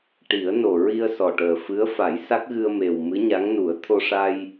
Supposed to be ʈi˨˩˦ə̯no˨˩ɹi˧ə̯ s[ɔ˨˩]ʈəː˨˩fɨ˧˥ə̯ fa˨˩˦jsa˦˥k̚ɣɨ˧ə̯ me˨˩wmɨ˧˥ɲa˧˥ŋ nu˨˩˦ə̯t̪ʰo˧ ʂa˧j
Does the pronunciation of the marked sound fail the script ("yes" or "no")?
no